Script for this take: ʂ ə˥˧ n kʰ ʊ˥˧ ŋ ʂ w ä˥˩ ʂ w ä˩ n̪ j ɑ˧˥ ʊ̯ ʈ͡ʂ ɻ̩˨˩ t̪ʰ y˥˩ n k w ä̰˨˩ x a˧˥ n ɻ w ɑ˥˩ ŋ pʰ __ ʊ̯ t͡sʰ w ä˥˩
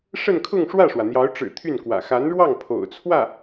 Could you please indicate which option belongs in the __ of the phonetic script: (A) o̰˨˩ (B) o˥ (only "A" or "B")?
A